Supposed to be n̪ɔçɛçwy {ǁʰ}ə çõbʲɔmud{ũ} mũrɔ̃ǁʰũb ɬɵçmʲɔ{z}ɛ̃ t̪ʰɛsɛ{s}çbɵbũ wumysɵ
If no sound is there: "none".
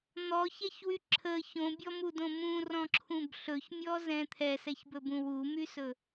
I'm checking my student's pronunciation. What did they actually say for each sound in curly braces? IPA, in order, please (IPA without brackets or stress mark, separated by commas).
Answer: ǁʰ, õ, z, none